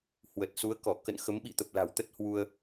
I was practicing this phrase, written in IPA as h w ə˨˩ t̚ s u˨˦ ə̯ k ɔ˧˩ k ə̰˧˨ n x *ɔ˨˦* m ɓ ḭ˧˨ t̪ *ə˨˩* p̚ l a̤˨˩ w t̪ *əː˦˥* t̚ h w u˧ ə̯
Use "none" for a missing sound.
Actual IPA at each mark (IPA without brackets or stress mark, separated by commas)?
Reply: ə˨˦, ə˨˩, ə˦˥